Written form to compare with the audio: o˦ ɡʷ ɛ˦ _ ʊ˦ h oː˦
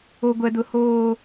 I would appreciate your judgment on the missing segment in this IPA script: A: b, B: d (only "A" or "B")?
B